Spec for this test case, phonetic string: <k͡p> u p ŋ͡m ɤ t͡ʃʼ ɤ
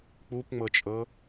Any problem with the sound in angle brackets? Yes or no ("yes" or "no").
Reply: no